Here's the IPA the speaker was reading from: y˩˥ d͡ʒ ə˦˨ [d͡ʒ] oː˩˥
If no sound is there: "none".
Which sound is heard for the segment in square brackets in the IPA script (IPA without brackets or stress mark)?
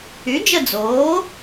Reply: d͡z